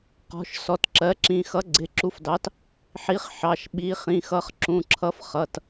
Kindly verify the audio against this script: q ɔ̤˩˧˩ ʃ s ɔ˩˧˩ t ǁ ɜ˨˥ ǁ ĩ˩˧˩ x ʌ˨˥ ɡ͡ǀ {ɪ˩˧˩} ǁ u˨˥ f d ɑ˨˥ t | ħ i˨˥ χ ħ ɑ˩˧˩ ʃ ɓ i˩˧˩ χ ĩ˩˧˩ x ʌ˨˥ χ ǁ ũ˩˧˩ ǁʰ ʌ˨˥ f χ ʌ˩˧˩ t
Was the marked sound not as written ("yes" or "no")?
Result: no